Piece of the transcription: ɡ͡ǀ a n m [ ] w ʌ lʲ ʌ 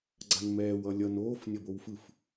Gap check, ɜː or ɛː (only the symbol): ɛː